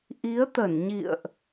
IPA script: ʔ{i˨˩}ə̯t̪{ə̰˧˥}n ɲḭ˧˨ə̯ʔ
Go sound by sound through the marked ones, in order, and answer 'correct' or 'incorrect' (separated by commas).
incorrect, incorrect